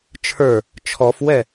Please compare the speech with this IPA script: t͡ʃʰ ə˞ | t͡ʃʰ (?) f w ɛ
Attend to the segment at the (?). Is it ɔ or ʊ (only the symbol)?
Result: ɔ